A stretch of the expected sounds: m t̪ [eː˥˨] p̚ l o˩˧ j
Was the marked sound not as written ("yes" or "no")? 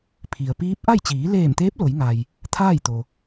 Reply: yes